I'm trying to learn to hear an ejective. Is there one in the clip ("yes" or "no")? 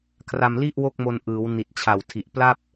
no